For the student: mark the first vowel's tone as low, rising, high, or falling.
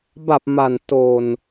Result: low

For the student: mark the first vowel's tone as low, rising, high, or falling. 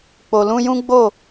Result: low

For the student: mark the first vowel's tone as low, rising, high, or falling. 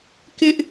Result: high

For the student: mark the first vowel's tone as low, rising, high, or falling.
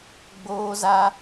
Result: high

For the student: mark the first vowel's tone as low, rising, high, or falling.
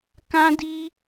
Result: high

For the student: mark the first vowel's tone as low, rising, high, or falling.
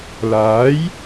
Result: rising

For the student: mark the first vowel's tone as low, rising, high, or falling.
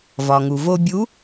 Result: low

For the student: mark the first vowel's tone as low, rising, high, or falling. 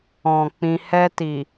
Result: low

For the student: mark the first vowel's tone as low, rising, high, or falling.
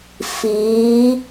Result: rising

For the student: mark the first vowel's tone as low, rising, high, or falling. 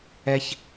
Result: high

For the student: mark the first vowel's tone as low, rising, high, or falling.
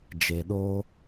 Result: low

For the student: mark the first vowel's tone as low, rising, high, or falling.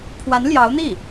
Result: rising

